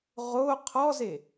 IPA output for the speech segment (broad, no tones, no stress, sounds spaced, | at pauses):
ʁ o qʰ ɔ z e